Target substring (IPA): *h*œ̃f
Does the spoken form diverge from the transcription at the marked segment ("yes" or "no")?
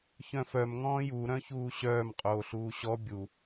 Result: yes